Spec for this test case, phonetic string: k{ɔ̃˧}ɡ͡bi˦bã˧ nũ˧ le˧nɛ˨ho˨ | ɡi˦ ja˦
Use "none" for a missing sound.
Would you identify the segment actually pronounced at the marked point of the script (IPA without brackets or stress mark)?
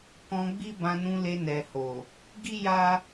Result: ɔ̃˧